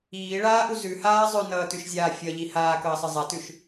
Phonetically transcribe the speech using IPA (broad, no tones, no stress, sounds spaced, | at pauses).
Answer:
iː ɭ aː ʔ u z ʉ h aː zˤ ʉ n ʌː t ʉ ʃ zʲ aː fʲ ʌ ʎ i h aː k ʌː sˤ ʌ zˤ a t ʉ ʃ